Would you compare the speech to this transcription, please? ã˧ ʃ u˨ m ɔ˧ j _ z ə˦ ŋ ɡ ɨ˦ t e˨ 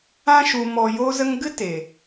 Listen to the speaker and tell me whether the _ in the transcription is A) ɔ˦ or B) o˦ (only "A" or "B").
B